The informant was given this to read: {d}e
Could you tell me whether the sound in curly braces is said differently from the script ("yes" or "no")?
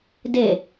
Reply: no